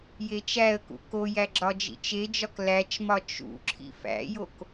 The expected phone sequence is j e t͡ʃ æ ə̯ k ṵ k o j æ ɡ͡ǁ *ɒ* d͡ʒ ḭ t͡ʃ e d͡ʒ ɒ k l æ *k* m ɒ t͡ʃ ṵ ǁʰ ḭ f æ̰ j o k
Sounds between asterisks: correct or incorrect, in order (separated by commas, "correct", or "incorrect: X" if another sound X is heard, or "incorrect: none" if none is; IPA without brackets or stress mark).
correct, incorrect: t͡ʃ